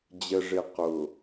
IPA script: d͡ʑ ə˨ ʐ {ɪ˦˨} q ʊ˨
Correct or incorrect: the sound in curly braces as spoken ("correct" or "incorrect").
incorrect